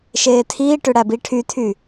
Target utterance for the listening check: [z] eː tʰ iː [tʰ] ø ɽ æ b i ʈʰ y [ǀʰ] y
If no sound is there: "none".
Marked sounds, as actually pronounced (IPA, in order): ʃ, ʈ, tʰ

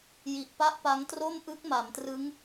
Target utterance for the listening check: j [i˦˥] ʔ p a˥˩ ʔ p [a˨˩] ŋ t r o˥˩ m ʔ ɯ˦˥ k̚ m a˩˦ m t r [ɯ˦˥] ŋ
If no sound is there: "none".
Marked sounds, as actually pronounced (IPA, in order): i˨˩, a˦˥, ɯ˦˥

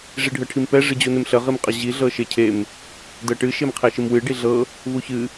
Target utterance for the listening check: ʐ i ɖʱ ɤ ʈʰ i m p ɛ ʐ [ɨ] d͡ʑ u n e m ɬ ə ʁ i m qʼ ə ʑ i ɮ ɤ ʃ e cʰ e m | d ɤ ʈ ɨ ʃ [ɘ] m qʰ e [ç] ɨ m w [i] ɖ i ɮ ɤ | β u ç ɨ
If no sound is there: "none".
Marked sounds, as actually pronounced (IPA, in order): ɨ, e, ʃ, ɨ

